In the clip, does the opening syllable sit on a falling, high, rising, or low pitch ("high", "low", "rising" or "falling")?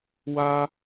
high